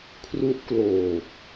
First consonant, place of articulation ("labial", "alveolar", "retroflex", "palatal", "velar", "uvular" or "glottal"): velar